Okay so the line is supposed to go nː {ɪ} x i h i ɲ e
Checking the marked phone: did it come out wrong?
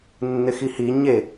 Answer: no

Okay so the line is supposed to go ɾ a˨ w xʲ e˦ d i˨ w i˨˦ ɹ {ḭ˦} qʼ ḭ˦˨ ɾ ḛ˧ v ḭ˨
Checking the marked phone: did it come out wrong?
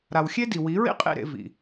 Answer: no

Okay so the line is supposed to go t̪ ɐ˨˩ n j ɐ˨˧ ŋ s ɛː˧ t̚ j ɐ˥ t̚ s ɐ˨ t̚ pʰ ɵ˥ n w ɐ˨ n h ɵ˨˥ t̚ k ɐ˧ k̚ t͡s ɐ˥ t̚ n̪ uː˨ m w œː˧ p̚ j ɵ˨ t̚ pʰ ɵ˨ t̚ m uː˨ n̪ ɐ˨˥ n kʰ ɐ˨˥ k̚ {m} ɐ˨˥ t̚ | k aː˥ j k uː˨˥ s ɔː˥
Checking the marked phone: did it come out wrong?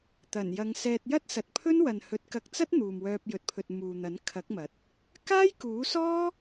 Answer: no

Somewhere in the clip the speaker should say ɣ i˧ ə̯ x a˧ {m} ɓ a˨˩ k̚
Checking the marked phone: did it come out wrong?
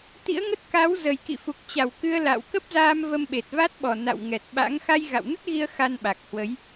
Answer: yes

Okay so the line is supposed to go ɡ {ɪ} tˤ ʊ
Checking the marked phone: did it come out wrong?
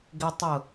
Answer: no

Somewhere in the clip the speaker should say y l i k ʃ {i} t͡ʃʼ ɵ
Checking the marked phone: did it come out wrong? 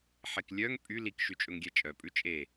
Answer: yes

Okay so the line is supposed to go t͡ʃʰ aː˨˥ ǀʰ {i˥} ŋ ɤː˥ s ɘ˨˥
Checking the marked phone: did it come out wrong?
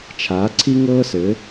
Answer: no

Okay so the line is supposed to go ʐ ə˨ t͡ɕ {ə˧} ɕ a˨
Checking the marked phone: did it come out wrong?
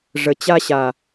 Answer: yes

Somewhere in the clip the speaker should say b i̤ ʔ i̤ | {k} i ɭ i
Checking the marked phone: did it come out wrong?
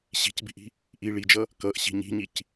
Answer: yes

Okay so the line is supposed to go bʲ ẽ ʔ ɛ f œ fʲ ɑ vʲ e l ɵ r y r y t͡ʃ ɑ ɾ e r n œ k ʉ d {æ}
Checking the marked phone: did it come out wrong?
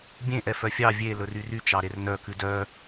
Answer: yes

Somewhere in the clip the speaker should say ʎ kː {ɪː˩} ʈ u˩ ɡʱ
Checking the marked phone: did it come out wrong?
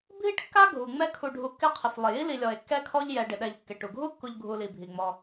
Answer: yes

